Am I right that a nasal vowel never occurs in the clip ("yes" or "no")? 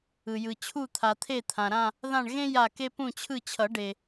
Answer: no